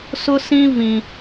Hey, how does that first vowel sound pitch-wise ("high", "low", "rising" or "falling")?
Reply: high